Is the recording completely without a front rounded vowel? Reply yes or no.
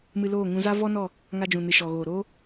yes